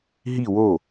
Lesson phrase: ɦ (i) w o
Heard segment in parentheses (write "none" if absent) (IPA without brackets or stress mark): i